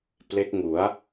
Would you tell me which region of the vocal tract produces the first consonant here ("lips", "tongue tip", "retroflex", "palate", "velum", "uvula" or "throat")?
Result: lips